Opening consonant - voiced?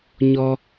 yes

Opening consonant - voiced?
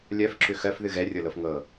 yes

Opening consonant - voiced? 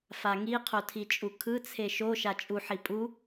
no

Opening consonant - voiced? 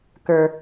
no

